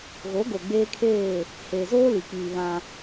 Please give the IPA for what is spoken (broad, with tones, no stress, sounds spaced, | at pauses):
ɣ o˨˦ ɡ o˨ ɡ͡b eː˦ kʰ eː˦˨ | h eː˨ z oː˦ l i˨ k͡p iː˨ β ã˦